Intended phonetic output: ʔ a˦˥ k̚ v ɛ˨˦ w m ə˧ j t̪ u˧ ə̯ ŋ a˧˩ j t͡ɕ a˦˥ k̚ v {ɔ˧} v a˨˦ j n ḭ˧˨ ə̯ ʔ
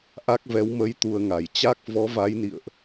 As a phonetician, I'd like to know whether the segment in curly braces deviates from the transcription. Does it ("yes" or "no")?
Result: yes